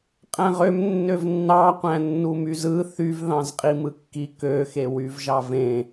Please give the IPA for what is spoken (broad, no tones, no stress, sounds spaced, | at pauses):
qʼ æ̃ ʁ ø m nː ø v nː ɑ qʷ æ̃ nː u m y z ɯ θ y v ð ɑ̃ z qʼ i m ɯ kː i k ø x e w y v ʒ ɑ v ẽ